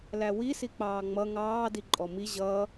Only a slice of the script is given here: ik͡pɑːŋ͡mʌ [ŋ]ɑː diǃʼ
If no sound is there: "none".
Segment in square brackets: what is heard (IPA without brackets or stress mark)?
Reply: ŋ